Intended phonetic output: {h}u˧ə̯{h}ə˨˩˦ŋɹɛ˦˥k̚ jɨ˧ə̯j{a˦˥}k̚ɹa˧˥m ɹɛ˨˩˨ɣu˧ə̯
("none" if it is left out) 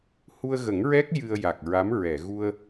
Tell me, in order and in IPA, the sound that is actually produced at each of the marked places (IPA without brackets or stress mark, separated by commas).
h, ɣ, a˨˩